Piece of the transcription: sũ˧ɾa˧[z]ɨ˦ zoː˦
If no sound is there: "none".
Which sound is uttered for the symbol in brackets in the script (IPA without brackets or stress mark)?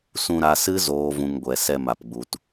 s